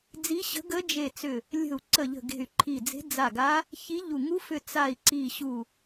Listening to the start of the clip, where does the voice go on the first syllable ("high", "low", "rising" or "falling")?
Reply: rising